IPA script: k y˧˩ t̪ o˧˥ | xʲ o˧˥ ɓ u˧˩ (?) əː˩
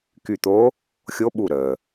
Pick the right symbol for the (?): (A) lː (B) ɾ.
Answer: B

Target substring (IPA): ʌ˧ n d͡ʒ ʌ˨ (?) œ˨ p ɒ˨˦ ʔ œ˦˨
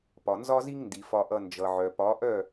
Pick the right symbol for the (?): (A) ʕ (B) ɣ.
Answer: A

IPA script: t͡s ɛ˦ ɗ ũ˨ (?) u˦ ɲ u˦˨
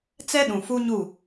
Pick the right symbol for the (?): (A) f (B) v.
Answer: A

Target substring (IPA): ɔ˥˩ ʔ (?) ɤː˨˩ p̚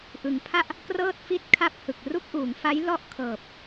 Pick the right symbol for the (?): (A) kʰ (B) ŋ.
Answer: A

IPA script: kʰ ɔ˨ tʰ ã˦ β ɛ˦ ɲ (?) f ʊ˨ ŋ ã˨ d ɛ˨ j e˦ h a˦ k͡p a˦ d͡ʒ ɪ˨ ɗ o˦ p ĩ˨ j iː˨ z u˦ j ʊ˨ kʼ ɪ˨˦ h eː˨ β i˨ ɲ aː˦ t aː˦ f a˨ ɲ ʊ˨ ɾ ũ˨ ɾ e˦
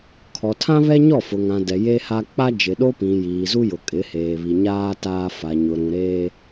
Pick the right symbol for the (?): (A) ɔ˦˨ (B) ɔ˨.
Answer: A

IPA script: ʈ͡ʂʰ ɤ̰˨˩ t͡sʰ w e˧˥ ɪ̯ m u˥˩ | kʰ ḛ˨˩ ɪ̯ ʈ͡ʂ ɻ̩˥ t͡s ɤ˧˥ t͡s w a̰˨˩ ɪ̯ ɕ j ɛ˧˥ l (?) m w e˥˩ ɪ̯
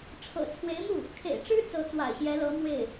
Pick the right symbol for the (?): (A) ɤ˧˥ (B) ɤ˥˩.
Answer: A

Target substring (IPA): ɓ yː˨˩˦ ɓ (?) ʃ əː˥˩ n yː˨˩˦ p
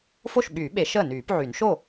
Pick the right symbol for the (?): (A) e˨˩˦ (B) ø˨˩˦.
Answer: A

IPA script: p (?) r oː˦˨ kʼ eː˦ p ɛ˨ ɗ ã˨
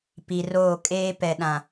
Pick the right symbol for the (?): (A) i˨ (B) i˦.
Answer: A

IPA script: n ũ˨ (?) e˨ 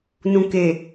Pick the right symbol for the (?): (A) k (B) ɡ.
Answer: A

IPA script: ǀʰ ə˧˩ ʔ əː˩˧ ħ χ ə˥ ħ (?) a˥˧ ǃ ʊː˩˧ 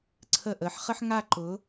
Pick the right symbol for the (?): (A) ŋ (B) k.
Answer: A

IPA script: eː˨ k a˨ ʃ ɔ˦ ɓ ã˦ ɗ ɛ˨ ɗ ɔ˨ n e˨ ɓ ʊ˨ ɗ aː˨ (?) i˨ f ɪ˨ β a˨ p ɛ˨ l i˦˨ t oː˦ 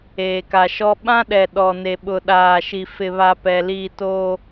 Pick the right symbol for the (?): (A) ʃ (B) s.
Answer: A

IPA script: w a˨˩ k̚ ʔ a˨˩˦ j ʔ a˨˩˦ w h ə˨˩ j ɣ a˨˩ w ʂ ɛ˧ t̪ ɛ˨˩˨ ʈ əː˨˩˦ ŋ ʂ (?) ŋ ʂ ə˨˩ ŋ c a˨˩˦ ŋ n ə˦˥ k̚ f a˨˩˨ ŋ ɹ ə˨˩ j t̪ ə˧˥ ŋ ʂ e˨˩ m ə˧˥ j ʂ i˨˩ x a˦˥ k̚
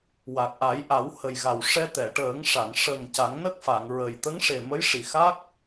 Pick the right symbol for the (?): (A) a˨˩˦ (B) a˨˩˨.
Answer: B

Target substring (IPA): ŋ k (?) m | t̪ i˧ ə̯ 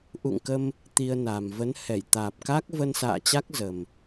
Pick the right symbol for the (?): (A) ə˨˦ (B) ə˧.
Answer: B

